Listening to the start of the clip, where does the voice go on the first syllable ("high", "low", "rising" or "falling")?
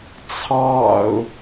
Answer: low